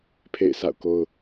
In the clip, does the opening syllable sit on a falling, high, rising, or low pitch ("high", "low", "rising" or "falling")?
falling